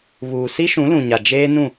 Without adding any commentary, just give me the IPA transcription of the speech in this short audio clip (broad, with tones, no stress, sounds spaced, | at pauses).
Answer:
β uː˨ s i˦ ʃ ũ˨˦ l ũ˨ ɲ a˨ d͡ʒ eː˦ n ũ˦˨